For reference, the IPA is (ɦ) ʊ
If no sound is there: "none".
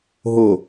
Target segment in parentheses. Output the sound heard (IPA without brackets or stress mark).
ɦ